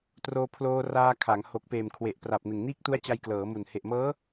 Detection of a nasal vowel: absent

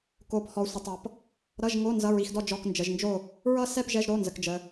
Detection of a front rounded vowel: absent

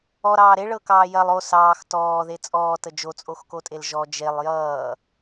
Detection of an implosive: absent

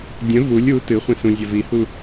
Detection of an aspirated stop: absent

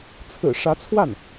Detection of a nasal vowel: absent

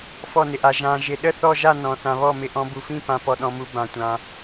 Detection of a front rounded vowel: absent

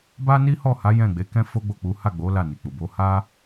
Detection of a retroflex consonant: absent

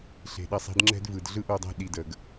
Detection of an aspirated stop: absent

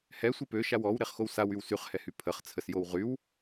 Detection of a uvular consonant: present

